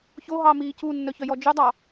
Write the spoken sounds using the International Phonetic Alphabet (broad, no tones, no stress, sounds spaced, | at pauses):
ç o ɦ ɑ m iː c u nː œ ç œ j ɔ d͡ʒ ʉ dˤ ɑ